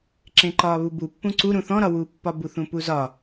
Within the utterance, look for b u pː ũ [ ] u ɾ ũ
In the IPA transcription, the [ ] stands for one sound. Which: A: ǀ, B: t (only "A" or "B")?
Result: A